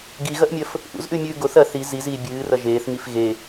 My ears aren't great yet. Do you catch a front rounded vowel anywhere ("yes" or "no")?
no